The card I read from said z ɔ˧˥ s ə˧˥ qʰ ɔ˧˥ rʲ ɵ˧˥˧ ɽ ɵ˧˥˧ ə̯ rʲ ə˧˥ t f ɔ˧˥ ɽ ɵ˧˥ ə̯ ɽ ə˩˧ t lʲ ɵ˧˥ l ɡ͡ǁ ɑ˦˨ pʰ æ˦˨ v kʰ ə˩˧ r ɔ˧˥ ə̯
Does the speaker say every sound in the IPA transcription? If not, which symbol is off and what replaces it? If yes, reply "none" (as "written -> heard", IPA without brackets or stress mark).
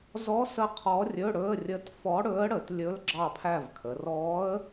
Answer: none